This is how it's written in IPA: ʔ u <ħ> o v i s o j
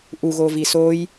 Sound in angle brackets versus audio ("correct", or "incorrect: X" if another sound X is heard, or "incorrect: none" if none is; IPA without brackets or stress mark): incorrect: ɣ